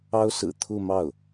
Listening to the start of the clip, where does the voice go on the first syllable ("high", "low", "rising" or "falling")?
high